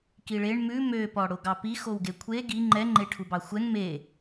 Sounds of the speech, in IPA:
k i ɭ e ɳ m ʉ m ø p ɔ ɽ o ɡ ɑ p i x o w ɡ e kʷʰ e ɡ i ŋ͡ǃ ɛ ŋ͡ǃ e ʈʰ u b ɑ xʷ ɛ ŋ m e

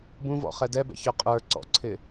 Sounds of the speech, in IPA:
b ũ v ɔ̰ χ ɛ d ɛ b ɛ̰ ç ə˞ qʼ ə˞ ǀ ɔ̰ ǀʰ ɪ

